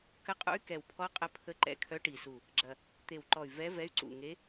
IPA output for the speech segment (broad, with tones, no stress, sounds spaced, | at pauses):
k ə˧˥ qʼ ṵ˧˥ y̯ k ɛ˨˩ w pʰ ɔ˧˥ qʼ ə˧˥ pʰ ə˧˥ ǃ ɛ̰˨˩ kʰ œ˧˥ ʈ i˨˩ s u˨˩ | ɡ͡ǁ ɐ˨˩ | t̪ e˨˩ w ǃ ɔ˨˩ y̯ v ɛ˧˥ v ɛ˧˥ y̯ ǀ ṵ˨˩ ŋ e˧˥